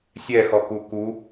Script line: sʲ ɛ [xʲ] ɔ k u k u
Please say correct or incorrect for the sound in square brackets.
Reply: incorrect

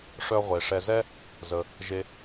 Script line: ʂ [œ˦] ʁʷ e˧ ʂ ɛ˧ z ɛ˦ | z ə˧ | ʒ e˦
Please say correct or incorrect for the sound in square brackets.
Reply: correct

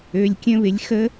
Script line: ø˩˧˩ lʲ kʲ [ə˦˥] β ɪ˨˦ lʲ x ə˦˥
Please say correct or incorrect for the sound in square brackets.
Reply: incorrect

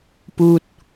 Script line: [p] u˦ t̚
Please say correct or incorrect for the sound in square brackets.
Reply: correct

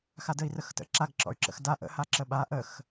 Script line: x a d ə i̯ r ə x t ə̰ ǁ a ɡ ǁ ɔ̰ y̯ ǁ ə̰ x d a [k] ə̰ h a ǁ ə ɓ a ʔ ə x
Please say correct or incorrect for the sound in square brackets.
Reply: incorrect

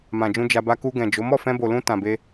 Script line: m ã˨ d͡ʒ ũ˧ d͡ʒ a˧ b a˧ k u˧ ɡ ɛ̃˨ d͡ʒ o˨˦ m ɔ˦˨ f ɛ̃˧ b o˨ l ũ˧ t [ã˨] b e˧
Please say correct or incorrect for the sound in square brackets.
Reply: correct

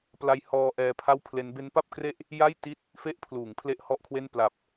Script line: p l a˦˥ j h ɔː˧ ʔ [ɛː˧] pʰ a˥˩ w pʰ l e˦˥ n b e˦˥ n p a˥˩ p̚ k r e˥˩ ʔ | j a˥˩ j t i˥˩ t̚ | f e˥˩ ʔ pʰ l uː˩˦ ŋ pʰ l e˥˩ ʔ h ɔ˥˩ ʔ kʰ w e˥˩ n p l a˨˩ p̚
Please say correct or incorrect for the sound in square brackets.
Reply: correct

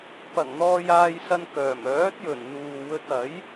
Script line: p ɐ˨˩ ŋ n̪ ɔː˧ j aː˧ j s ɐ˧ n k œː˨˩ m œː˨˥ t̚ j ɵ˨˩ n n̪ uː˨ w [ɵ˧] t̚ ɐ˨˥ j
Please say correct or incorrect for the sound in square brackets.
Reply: correct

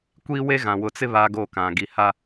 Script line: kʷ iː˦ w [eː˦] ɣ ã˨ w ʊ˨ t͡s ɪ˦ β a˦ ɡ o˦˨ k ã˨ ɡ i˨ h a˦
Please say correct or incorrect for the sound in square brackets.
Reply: incorrect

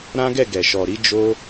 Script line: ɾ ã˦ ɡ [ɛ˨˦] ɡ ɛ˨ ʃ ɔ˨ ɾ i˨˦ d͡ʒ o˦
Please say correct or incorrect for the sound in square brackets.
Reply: incorrect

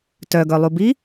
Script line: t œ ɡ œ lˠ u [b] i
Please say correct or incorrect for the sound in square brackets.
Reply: correct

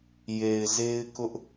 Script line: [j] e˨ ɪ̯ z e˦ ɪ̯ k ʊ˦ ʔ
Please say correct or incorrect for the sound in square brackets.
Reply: correct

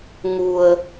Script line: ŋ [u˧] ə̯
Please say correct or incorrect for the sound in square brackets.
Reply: correct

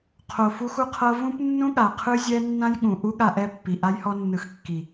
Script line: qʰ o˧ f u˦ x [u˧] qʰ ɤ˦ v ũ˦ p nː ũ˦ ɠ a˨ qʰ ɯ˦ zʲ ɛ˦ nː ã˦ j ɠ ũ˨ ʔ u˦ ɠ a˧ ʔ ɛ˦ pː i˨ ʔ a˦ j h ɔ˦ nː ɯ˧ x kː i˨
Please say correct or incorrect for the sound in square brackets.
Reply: incorrect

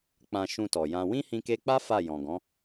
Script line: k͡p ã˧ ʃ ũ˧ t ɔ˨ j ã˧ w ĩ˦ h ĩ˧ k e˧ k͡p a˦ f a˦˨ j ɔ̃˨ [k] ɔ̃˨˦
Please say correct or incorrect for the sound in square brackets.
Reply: incorrect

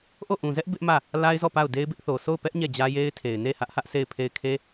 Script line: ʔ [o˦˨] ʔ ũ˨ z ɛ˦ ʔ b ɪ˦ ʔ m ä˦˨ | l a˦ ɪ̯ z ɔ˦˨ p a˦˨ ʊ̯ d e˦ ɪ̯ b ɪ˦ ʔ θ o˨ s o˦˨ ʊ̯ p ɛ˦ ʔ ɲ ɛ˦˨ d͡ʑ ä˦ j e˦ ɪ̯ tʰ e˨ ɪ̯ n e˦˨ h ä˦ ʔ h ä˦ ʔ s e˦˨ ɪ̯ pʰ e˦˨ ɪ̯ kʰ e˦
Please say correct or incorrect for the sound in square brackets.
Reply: correct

